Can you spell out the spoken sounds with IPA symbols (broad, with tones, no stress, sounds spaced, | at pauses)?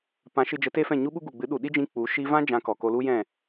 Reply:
p ã˨˦ ʃ ɨ˧ d͡ʒ ə˨˦ t e˦ f ɛ̃˦˨ ɲ u˦ ɓ u˦ ɡ u˨ ɡ͡b ɨ˨˦ ɗ u˨ ɗ i˦ d͡ʒ ĩ˧ k͡p u˨˦ ʃ i˧ v ã˦ d͡ʒ ã˧ k ɔ˨ k o˧ l u˦ j ɛ̃˦˨